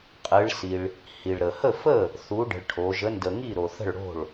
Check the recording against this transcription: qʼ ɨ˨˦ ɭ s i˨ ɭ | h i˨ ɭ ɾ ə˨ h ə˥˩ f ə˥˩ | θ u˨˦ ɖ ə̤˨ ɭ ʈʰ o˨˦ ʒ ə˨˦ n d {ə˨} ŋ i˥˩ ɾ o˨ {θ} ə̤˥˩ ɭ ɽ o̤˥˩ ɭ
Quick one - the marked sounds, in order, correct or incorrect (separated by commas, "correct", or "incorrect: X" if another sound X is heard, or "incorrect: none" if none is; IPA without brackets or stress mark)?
correct, correct